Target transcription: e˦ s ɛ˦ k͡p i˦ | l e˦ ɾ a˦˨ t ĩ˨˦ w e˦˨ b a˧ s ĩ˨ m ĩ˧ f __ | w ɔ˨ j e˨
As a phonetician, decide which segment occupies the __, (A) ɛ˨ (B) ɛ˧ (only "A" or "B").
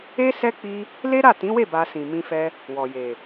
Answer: B